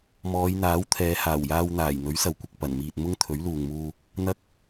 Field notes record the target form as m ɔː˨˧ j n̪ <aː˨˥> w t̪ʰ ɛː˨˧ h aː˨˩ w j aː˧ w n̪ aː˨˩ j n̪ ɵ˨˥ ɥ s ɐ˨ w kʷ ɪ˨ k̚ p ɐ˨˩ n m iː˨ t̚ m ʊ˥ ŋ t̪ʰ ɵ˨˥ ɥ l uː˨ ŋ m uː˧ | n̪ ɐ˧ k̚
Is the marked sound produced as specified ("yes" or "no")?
yes